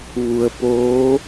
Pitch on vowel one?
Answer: low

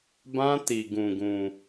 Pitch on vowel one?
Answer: high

